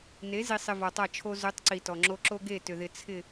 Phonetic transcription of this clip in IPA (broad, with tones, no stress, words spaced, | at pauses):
ne˨˦ zi˨sˤɪ˨ vɔ˨tˤa˦˨t͡ʃʰo˦ zʏ˨˦tˤ ǀi˨tɔ˨ŋ͡ǁo˦ ǁo˦ɡe˦˨tʏ˨ðɪ˨ t͡sʰɪ˨